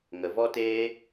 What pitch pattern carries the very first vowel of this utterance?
low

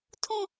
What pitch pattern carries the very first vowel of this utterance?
high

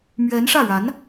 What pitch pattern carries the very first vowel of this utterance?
rising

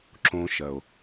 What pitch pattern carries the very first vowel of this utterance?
high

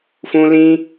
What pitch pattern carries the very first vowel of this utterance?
high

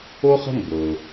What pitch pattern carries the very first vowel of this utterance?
high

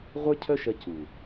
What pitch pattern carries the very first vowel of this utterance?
high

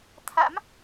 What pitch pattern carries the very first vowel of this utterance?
rising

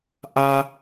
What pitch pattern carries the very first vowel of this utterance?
high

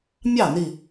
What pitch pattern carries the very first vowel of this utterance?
falling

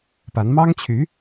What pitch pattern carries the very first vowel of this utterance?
rising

